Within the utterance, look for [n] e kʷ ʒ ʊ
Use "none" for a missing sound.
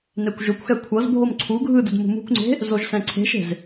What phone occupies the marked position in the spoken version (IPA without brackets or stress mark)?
n